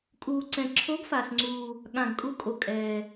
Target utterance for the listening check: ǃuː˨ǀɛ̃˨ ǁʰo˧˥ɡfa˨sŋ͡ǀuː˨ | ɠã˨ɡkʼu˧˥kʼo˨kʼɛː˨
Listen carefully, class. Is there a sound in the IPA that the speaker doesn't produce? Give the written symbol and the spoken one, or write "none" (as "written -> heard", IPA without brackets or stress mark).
ǃ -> kʼ